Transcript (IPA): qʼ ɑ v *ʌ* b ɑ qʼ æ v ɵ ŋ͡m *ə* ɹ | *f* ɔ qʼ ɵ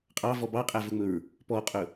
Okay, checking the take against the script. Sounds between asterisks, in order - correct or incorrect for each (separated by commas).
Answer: incorrect, incorrect, incorrect